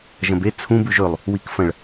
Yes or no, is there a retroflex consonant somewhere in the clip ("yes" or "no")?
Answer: yes